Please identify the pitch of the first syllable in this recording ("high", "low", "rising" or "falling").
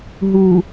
low